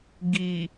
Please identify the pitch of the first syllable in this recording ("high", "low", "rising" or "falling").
low